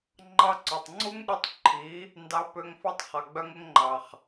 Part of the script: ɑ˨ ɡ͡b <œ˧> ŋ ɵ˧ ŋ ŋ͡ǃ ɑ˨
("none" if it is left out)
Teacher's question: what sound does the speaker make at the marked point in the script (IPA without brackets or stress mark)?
œ˧